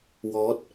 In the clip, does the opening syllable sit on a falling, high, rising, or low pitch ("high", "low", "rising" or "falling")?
rising